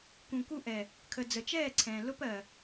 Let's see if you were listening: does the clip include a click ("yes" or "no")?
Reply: yes